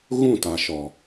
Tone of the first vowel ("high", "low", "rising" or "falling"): falling